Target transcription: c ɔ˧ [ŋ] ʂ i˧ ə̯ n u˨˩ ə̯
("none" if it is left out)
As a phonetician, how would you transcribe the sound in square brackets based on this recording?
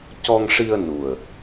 ŋ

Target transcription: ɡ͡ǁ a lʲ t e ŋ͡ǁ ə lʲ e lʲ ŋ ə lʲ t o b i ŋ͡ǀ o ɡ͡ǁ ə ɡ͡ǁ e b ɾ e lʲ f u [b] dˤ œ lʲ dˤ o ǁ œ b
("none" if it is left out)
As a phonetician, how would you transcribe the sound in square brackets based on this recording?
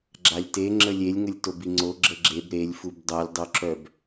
b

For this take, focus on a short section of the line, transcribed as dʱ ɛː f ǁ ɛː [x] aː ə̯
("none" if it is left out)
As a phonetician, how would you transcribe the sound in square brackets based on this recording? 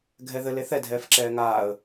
ŋ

